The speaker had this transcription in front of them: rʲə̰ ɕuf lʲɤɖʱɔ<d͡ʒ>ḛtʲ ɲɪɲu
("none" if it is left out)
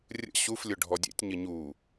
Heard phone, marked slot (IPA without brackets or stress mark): dʲ